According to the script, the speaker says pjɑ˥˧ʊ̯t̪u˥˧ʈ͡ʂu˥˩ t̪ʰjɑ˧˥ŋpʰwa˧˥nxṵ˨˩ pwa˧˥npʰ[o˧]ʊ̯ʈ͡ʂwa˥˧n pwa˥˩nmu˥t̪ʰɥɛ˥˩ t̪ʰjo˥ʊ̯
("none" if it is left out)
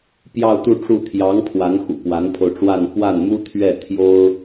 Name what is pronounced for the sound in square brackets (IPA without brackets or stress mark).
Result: o˧